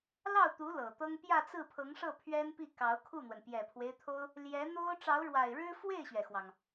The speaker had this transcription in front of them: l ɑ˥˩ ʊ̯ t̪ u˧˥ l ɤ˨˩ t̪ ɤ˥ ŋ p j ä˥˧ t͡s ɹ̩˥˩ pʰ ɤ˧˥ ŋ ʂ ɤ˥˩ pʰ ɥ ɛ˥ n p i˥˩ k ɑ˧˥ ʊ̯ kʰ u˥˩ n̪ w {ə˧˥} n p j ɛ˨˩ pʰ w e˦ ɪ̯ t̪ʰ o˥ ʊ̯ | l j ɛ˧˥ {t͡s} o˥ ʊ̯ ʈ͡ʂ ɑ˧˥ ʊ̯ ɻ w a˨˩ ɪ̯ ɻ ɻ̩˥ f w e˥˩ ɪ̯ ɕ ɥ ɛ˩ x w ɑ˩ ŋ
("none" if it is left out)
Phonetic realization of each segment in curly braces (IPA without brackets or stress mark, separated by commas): ə˩, n̪